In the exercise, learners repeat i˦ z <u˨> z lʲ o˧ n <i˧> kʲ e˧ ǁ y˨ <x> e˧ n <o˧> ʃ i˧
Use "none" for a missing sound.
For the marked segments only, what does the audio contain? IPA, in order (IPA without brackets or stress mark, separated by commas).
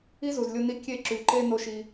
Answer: u˨, i˧, ǃ, o˧